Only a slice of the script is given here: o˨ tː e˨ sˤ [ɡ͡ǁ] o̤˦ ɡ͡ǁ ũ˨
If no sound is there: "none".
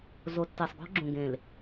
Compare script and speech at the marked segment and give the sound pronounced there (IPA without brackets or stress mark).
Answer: ɡ